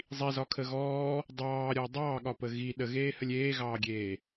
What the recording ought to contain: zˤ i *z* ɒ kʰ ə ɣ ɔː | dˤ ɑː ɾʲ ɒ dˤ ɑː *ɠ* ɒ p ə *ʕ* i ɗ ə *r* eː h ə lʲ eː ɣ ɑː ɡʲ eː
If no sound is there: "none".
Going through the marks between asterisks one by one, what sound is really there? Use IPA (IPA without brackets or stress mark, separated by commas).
z, ɠ, ɣ, ɣ